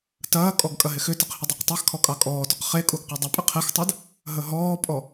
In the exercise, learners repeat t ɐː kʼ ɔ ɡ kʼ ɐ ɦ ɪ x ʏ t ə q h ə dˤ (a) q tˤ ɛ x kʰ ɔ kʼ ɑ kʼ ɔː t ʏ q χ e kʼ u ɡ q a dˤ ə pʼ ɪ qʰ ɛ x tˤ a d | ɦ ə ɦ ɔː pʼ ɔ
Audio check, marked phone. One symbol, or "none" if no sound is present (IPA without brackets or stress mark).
ɑ